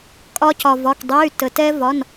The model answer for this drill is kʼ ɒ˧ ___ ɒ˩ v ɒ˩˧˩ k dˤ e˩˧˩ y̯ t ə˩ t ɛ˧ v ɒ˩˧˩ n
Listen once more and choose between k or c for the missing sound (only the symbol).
c